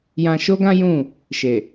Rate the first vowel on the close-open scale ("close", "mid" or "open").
open